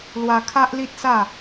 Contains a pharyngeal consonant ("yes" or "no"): no